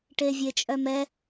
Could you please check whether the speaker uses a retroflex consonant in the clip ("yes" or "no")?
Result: yes